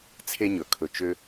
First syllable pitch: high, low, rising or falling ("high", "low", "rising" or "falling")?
high